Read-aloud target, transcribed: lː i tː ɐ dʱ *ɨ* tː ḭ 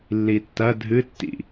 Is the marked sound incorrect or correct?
correct